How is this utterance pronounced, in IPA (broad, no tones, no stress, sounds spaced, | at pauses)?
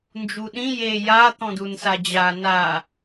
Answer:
n d͡ʒ u ɗ ĩ j e j a t̪ ɔ̃ d u n s a d͡ʑ a n aː